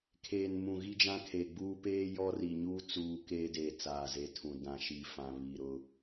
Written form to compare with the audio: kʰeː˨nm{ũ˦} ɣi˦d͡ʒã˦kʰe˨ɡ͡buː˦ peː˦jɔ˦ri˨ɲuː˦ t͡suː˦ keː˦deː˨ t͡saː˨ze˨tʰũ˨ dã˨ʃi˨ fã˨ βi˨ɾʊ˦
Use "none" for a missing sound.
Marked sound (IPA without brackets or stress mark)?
ũ˨